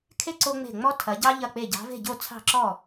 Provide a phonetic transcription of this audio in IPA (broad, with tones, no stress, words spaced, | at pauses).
kʰe˥ ǀo˥ŋ͡me̤˥˩ ŋ͡mɔ˥tʰɐ˨˦ɟɑ˥ ʎɐ˥˩k͡pe˥˩ ɟɑ̤˨˦ve̤˥˩ɟo˥˩ t͡sʰɑ̤˥˩ǁɔ˥˩